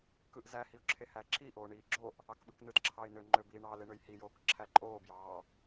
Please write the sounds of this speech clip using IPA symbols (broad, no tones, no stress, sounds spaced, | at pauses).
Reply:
k ɯ ʔ z æ h i ʊ̯ ǁʰ e h æː ǁʰ i ʔ oː ɳ iː ɡ͡ǁ o ʔ | ɑ k ɓ ɯ k n ɯ t ǁʰ ɑ ɪ̯ n ø ŋ͡ǃ ø b iː ɳ ɑ l e ɳ ø j h i j oː k ǁʰ æ ǃʼ oː b j ɑː